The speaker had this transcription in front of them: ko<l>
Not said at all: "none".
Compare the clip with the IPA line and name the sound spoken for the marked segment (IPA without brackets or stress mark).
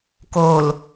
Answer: l